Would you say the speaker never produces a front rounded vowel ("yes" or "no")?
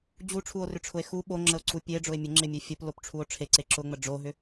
no